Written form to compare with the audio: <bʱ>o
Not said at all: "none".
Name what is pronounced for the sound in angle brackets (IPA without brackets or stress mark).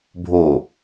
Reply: bʱ